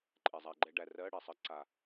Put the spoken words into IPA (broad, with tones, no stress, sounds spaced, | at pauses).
ǃʼ ɛ˨˩ zˤ a˧˩˧ ɡ͡ǃ ɛ˧ ɖ æ˨˩ r ɜ˧˥˧ ɽ ɛ˨˩ sˤ ɜ˧ ǀ a˨˩